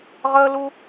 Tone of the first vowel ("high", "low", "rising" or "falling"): high